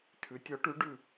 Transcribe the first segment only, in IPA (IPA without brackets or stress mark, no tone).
tʰ